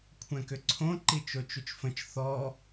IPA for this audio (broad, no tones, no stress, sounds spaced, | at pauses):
kʷʰ ɛ̃ k ʏ ǀʰ õ ǃ i t͡ʃ o t͡ʃ u t͡ʃ f ə̃ t͡ʃ θ ɔ